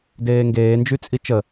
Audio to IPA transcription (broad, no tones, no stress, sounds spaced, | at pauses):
d eː ŋ ɡ eː n d͡ʒ y t͡sʼ i t͡ʃ ə